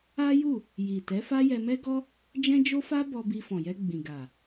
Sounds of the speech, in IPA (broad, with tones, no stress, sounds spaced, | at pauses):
a˦ j u˦˨ | j i˨ t ɛ˨˦ f a˦ j ɛ˧ m ɛ˦ ɡ ɔ˦ | d͡ʒ ɛ̃˦ d͡ʒ o˦ f a˦ b ɔ˧ b i˧ f ɔ̃˨ j ɛ˧ ɡ͡b ĩ˨ ɡ a˨